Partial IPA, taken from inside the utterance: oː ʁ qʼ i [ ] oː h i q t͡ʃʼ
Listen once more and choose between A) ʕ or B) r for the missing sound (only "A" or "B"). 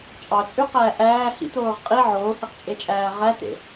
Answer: A